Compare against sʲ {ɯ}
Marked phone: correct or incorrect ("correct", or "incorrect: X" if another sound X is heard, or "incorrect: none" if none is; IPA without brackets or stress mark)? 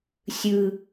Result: correct